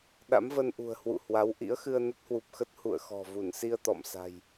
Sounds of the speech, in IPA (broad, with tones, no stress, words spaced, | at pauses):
ɗa̰˧˥mvə˧nʔṳ˨˩ə̯ hwṵ˧˨hwa˨˦wʔḭ˧˥ə̯ xɨ˧ə̯nə˦˥t̚hwu˨˩p̚xə˦˥t̚ hṵ˧˨ə̯xɔ̤˨˩ vu˧˩nsi˧ə̯ t̪ɔ̰˧˨m sa̤˨˩j